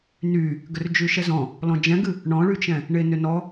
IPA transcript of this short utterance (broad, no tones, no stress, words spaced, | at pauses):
ny | ɡʏrd͡ʒyʃɛzɔ̃ | lɔ̃d͡ʒɛ̃ɡɨ | ɳɔ̃ɭyt͡ʃɛ̃ | ɳenʏnɔ